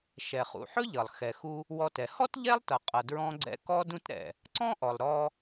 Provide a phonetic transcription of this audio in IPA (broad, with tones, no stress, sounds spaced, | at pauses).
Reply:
ʃ ɛ˩ χ ṵ˩ ħ ɵ˥ ʎ ʌ˩ lˠ x ɛ˩ x u˧ | w ɔ˧ t ɛ˩ h ɔ˥ t ʎ ɛ˥ lˠ t ʌ˩ qʼ ʌ˩ d ɹ ɔ̃˧ ɡ͡ǀ ɛ̰˧ k ɔ˧ d ũ˧ t ɾ ɛ̰˩ | ǀ ɔ̃˥ ʔ ɔ˩ lˠ ɾ ɔ˧